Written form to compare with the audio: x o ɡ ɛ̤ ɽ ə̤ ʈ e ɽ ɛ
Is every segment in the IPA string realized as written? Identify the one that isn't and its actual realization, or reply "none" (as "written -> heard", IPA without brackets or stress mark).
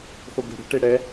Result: none